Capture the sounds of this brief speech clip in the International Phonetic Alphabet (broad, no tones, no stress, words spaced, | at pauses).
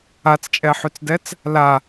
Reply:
at͡st͡ʃʼɛħyt͡sdɛt͡s | la